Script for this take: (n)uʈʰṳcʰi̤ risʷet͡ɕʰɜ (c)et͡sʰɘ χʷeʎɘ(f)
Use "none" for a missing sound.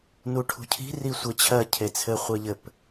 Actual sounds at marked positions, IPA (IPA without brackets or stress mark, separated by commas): n, cʰ, p